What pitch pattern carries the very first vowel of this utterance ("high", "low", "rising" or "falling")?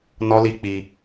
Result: high